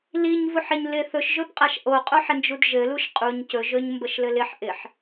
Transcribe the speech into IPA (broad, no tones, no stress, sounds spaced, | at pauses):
l i ɲ v u ħ ɪ ɲ l ɪ θ ɵ ʃ ʒ ɵ p qʼ a ʃ ʔ o qʼ o ħ ɪ n d͡ʒ u d ʒ ɘ l u ʃ qʼ u ɲ c ɵ ʒ ɵ ɲ m b ə ʃ l ɘ l ɪ ħ ʔ ɪ ħ